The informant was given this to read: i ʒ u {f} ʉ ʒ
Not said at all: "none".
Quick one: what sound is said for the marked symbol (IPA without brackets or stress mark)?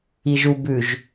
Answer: b